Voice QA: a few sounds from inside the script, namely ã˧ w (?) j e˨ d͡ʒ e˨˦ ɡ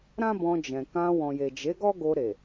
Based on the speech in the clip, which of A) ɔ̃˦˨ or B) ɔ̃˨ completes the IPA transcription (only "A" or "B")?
B